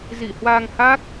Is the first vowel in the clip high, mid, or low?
high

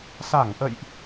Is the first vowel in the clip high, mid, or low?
low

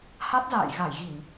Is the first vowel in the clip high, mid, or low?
low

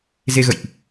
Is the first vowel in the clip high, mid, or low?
mid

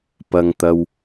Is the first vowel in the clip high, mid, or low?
low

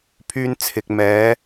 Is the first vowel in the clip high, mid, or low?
high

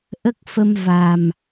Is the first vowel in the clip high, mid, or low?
mid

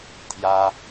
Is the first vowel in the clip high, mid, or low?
low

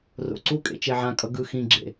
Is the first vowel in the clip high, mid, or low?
mid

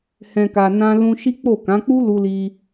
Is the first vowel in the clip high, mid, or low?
mid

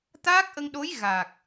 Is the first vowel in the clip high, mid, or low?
low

